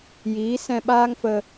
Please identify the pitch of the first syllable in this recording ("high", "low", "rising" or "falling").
rising